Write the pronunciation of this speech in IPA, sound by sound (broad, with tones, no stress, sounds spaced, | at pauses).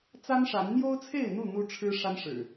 t͡s a˦ n ʂ a˨˦ n n̪ j o˦ ʊ̯ t͡sʰ e˥˨ ɪ̯ n̪ u˥˨ n̪ u˦ ʈ͡ʂʰ ɻ̩˦ ʂ a˦ n ʂ ɻ̩˨˩